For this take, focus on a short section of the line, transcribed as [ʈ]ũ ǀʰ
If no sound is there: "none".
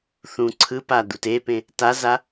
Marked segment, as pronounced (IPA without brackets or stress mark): θ